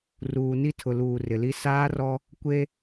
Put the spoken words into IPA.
ruː˨ni˦tʰʊ˨luː˨ rɪ˨li˦ saː˦rɔ˦ | kʷe˦

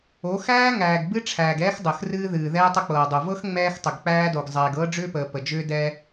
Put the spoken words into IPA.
o˨˦xæː˦ ŋæː˨ɡ bɨ˦ʈ͡ʂʰæː˨ɡɛː˦x dˤəː˨xrɨː˦ðɨː˨ ðɛː˦tˤə˦k͡pɤː˨dˤo˨ vɤ˦x ŋ͡mɛː˦xtˤʏ˨ɡk͡pæː˦do˨ɡ zˤɛː˨ɡɤː˦ɖ͡ʐʏː˦pəː˨ pə˨d͡ʒʏː˦ dɛ˦

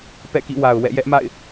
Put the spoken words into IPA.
pɛ̰˦˨kḭ˦˨wa˨ʊ̯ wɛ̰˦˨jɛ˦ʔma̰˦˨ɪ̯

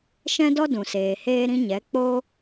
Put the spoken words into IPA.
ʃɛ̃˦dɔ˦dũ˨seː˨ heː˦ɾĩ˦ ɲɛ˨˦k͡poː˦

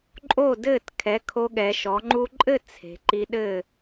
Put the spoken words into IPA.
ǃʼo˥˨dɘː˥˨t kʰɛ˩˥kʰo˧ɠɛ˩˧ ʃɔ˩˧ŋ͡ǃu˧ǃʼɘ˥˨ t͡sʰe̤˩˧ǃi˧ɗɘ˥˨

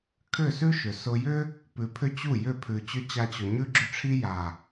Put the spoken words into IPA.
kʰʏ˦˨sʉ˦ʃʏ˨ sʊ˧jʏ˦ | pʉ˧pʰʏ˦ t͡ɕu˦˨jʏ˦˨ pʰʉ˨t͡ɕʏ˧ t͡ɕa˧t͡ɕʊ˨ ɲʉ˦ɡ͡ǁʏ˦ʈ͡ʂʰi˦ ja˨

